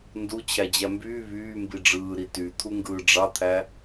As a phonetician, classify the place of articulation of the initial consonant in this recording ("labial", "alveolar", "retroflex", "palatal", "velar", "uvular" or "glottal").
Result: alveolar